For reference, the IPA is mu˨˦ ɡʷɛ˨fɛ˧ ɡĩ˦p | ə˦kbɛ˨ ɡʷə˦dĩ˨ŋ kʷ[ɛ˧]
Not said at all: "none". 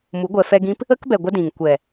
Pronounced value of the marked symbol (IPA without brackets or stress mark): ɛ˨